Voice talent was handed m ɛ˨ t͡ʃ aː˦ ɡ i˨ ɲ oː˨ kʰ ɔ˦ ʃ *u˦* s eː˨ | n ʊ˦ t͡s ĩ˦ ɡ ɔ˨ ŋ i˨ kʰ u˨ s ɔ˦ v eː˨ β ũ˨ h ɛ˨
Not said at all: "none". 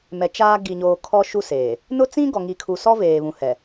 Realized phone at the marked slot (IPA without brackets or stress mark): u˦